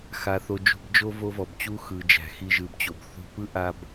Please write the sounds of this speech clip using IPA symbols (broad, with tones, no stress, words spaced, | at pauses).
xa˧θo˧ d͡ʒṳ˧bd͡ʒo˦ vo˦vɔ˨b t͡ɕu˦xɯ˨ d͡ʒæ̤˨xi˧ʒɯ˨bt͡ɕo˨b θṳ˧pɯ˦ ʔa˧b